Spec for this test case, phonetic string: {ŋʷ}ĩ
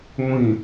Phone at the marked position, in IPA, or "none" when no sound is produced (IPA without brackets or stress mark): ŋʷ